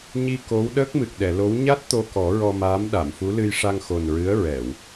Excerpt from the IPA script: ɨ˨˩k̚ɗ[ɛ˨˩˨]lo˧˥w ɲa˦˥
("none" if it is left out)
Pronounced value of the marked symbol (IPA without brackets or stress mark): ɛ˨˩˨